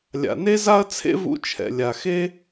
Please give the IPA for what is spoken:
lʲ a̰˩ n e˥ z a˥ ɐ̯ t͡sʰ ḛ˥ v ṵ˧ t͡ʃʰ ɛ̰˩ lʲ a˩ x e˥

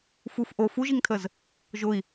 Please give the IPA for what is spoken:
f u f ʔ o f u ʒ i ŋ tʰ ə z | ʒ ʊ i̯

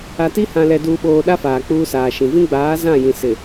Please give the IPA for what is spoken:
a˨ t i˦ h ã˨ l ɛ˨ d uː˨ ɓ oː˨ ɗ a˦ f aː˨ k͡p uː˦ s aː˨ ʃ ĩ˨ v ĩ˦ ɡ͡b aː˨˦ z ã˦˨ j ĩ˨ s ɪ˨

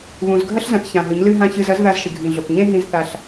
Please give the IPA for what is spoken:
β ũ˨ z ɡʱ ɐ˦ ɬ z ɐ̃˨ θ ç ã˨ ɦ ɨ˨˦ ɲ l ɨ˦ ɦ ã˦ ç ɨ˨ z ɐ˨˦ z ð a˦ z ʃ ɨ˨ ɡʱ ĩ˨ ɮ o˨ k ɲ ẽ˦ ɦ ĩ˦ z θ a˦ ɬ

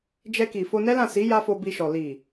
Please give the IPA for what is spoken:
d͡ʒ ɛ˧ k i˨ f o˧ n ɛ˦ l ã˦˨ s i˨˦ j a˦ f o˧ b i˧ ʃ ɔ˨ l i˨

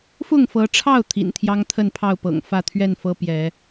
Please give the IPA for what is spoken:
f ʊ˥˨ ŋ f ɤ˨˦ ʈ͡ʂʰ ɑ˥˨ ʊ̯ t̪ʰ ḭ˨˩ n t̪ʰ j ɑ˦ ŋ t̪ʰ ə˥˨ n pʰ ɑ˥˨ ʊ̯ p ɤ̰˨˩ ŋ f ä˥˨ t̪ʰ ɥ ɛ˥˨ n f ɤ˦ p j ɛ˨˦

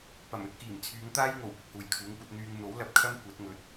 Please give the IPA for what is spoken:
p ɐ˨˩ m ɵ˧ t̚ k iː˨˩ m t͡sʰ yː˨˧ ŋ t̪ aː˥ j ŋ o˨˩ w p ɪ˧ k̚ h uː˨˩ j kʰ uː˨˥ ŋ kʷ ɐ˨˥ t̚ n̪ yː˧ ŋ n̪ o˨˥ w l ɐ˨ p̚ kʰ ɐ˥ m kʷ ɐ˨˥ t̚ ŋ ɵ˨˥ t̚

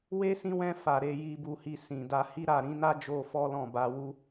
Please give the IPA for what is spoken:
w e˦ s ĩ˦ w ɛ̃˦ f a˧ ɾ e˧ j i˧ b u˧ h i˧ s ĩ˨ d a˧ h i˦ ɾ a˦˨ ɾ ĩ˨˦ n a˦ d͡ʒ o˧ f ɔ˦ l ɔ̃˦˨ b a˧ w u˧

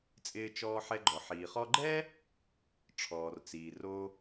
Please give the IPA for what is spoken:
t͡sʼ ɪː˧ t͡ʃ ɔː˧ ħ ɛ˧ ɡ͡ǃ ɔ˩ ħ iː˩ χ ɔ˧ ɡ͡ǃ ɛ˥ | ʈ͡ʂʰ ɔː˩ r t͡s iː˩ r o˧

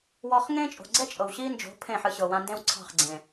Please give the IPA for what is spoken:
w ɔ˧ χ ŋ ẽ˦ t͡ʃʼ o̤˨ ɡ͡ǀ ɛ˦ t͡ʃʼ ɤ˨ w ɕ i˦ n d͡ʒ o̤˨˦ pʰ ẽ˦˨ ħ ɨ˧ ɕ ɤ˨ w ã˧ n d ẽ˦ w ǀʰ ɑ̤˦˨ χ ɡ͡ǀ ẽ˨

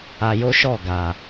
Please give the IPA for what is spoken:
a˧ j o˦ ʃ ɔ˦˨ ɡ a˨

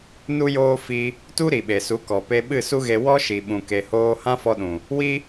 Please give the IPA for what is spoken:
n u˦ j oː˦ f i˧ | t u˦ ɾ i˨ ɓ e˨ s u˨˦ k ɔ˨ p e˧ ɓ ɨ˦˨ s u˦ ɣ e˧ w ɔ˦ ʃ i˨ ɓ ũ˨ k e˨ h oː˧ h ã˦ f ɔ˧ ɗ ũ˨ | w i˦

